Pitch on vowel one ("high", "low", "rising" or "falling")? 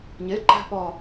rising